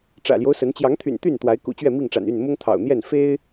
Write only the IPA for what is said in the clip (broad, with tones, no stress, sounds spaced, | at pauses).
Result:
ʈ͡ʂ ä̰˨˩ l j o˦ ʊ̯ s ə˨˦ n t͡ɕ j ɑ˨˦ ŋ t̪ʰ y̰˨˩ n t̪ y˥˨ n t̪ w a˨˦ ɪ̯ k ṵ˨˩ t͡ɕ ɥ ɛ˥˨ m i˥˨ ŋ ʈ͡ʂ a̰˨˩ n y˥˨ n m ʊ˦ ŋ t̪ʰ ɑ̰˨˩ ʊ̯ n̪ j ɛ˥˨ n f e˦ ɪ̯